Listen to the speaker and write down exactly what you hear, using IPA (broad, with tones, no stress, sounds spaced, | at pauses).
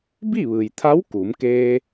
b i˥˨ ʋ ɯː˩ j t̪ʰ a˧˥ w k uː˩˧ m k eː˧